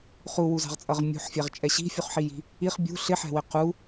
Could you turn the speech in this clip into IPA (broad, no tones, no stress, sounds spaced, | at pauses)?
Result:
χ u w u z ɑ̤ ʁ t͡sʼ ʌ ʁ mʲ ṳ ħ fʲ æ ʁ t͡ʃʼ ɛ ɕ i̤ fʲ u χ ħ i j i̤ | i χ bʲ ṳ ɬ ɪ ħ ɛ̤ w ɪ q u